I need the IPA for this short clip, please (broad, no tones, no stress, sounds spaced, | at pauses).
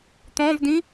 t̪ ɔ̃ v d ĩ